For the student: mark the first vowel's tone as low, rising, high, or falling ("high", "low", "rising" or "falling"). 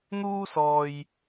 high